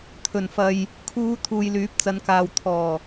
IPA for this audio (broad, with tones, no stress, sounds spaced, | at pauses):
t̪ʰ ɵ˨˩ n f ɐ˨ j | kʰ uː˨˧ t̪ʰ uː˨ j l yː˨˥ p̚ t͡s ɐ˨˧ n k aː˨ w t̪ʰ ɔː˨˩